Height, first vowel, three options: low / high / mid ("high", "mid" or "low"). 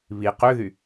high